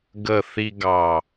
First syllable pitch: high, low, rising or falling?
low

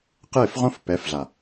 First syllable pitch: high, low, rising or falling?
falling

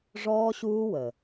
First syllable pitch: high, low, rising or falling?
high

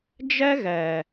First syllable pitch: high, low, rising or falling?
high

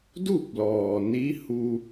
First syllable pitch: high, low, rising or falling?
falling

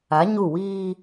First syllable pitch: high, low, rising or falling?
rising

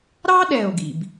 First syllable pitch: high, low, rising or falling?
high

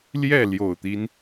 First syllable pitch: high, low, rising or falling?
falling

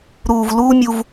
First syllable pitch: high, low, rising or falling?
low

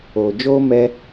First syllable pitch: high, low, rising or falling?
low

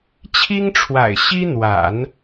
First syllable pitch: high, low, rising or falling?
high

